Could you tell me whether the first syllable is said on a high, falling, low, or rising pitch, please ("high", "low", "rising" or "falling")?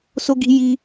high